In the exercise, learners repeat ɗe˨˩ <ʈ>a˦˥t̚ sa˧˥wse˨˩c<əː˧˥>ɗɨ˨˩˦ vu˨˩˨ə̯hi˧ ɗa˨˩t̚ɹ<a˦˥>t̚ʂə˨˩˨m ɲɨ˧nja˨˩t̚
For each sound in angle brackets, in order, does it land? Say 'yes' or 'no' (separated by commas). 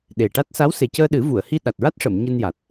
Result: yes, no, yes